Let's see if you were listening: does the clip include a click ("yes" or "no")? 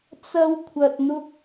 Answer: no